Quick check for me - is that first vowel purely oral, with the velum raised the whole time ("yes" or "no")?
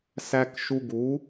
yes